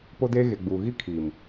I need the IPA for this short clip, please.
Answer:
po˦deː˦ɣe˨ɡ͡buː˨ ɣi˦kʰiː˨m

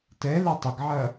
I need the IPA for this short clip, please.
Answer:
tɛlɐ tˤəɡʕɐ

